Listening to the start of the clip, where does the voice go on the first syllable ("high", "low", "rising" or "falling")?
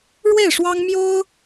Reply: falling